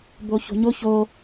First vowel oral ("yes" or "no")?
yes